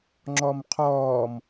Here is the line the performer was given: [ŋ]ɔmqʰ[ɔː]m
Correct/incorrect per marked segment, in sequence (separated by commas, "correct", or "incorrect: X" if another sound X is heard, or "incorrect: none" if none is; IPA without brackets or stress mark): incorrect: ŋ͡ǁ, correct